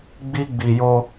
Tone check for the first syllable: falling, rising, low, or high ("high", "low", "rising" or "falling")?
high